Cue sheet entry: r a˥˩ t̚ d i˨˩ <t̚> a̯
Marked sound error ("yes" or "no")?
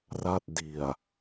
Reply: yes